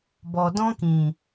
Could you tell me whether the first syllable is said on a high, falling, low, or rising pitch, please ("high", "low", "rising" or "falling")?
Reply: low